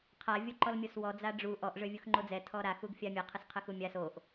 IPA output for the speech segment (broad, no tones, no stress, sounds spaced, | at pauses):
qʰ a vʲ o ǃ ɔ l mʲ o s w ɔ d͡z a ɖ͡ʐ u ʔ ɔ ʔ ʐ ø vʲ u x ŋ͡ǃ o d͡z ɛ tʰ ɔ ɾ a x u ɡ fʲ a mʲ ə qʰ ə s qʰ ə x u mʲ a s o ʔ